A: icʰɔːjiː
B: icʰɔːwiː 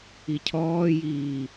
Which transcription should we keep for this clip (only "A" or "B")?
A